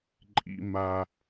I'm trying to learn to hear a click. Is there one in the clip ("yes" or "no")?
yes